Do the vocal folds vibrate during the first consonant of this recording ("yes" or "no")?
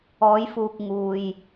yes